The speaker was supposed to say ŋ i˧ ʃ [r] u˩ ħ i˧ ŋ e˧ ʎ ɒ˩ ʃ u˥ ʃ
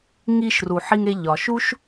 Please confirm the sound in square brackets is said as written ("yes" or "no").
yes